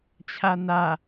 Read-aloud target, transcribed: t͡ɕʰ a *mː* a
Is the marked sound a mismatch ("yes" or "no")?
yes